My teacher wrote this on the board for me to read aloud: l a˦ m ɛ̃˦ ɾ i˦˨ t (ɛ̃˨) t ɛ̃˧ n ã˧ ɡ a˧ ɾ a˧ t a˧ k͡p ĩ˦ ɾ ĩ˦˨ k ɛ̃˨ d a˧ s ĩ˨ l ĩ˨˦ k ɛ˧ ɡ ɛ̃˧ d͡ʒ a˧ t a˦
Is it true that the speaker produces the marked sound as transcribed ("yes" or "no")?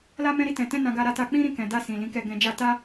yes